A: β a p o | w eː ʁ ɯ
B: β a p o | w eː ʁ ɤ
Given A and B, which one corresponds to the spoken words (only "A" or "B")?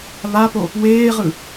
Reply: A